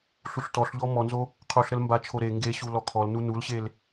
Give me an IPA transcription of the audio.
ɬ u ɬ t ɔ ɬ ʎ ɔ m ɔ n z o | qʰ u ɬ ɾ ə l m b a t͡ʃʰ o ɾ e ŋ ɡ e ɕ u l ɔ kʰ ɔ l n u n u l ɕ e l

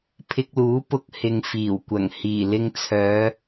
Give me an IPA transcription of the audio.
pʰ ɪ˧ k̚ l uː˨˥ p ʊ˧ k̚ h ɪ˨ ŋ f iː˨˩ w kʷ ɐ˨˩ ŋ h iː˨˩ l ɪ˧ ŋ t͡sʰ œː˨˧

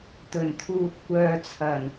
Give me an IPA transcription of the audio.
t̪ ɵ˨˩ n t̪ʰ uː˨ t̚ kʷ œː˨ t͡sʰ ɐ˨˩ n

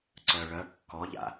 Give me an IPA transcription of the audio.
ǀ œ ɭ œ kː ɔ ʎ a̰

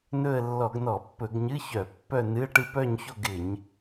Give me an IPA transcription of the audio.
n ɵ˥˧ ə̯ lː ɔ˧˩˧ ɡ n ɔ˧˩˧ pː ɵ˧˩˧ ɡ ɲ ɨ˧˥˧ ç œ˧˩˧ pː œ˥˧ n ɨ˧˥˧ ə̯ ʈ ɨ˥˧ p œ˥˧ ɲ ç o˥˧ ɡ ɪ˧˩˧ ɲ

